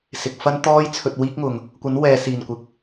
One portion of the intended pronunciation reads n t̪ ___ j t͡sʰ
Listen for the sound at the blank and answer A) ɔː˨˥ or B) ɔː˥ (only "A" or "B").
B